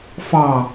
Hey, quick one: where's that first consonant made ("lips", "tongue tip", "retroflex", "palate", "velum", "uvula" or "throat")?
lips